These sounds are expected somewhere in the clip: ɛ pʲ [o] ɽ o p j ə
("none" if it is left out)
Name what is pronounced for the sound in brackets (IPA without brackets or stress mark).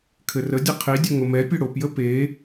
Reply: ɵ